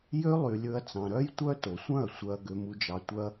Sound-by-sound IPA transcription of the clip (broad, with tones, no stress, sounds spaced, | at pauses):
j ø˦ lˠ y˧ lʲ ɵ˦ ɐ̯ t͡s ɑ̃˧ ɾ œ˦ j tʷ œ˦ t o˨ sʷ œ̃˦˨ ɐ̯ sʷ œ˧ ɐ̯ ɡ ø˧ m u˧ d͡ʒ ɑ˧ tʷ œ˦ ɐ̯